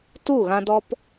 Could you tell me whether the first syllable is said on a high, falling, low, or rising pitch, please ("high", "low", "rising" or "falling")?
falling